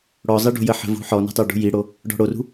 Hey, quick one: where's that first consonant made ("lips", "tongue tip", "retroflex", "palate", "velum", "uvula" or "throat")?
retroflex